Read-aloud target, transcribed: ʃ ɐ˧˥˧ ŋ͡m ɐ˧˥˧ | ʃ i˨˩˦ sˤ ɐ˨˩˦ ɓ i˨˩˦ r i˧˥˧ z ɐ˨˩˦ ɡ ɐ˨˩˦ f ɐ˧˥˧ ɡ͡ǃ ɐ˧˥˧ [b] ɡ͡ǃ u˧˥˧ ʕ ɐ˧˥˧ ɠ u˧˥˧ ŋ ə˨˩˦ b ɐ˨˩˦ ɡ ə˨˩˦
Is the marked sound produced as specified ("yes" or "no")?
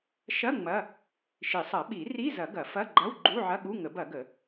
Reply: no